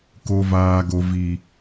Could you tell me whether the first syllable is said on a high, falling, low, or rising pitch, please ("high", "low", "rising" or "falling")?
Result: high